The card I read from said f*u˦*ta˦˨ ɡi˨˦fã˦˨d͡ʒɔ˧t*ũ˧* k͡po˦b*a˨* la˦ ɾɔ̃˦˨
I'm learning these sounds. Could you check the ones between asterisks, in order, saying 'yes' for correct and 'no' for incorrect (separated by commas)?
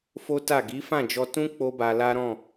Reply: no, no, no